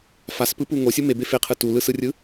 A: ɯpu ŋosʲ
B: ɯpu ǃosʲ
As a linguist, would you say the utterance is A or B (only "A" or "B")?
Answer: A